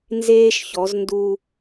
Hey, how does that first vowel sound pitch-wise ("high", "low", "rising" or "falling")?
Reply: high